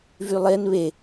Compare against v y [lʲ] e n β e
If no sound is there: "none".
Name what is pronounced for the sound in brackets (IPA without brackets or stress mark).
lˠ